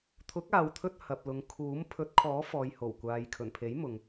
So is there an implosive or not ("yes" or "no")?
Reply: no